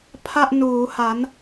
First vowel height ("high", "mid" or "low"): low